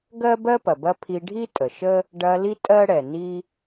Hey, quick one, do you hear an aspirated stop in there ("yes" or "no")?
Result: yes